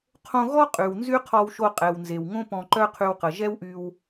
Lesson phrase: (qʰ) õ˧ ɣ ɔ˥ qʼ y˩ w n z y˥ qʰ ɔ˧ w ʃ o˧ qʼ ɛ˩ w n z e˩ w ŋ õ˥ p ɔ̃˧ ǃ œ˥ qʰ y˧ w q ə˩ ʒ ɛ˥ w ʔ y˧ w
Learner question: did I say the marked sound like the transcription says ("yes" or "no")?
yes